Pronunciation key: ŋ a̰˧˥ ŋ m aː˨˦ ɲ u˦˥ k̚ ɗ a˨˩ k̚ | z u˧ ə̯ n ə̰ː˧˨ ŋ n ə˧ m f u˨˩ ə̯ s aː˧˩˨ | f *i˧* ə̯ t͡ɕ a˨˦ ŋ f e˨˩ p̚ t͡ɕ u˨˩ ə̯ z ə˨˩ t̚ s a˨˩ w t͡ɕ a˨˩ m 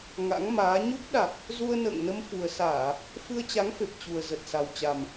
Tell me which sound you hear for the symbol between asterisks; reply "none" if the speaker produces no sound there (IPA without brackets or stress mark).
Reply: ɨ˧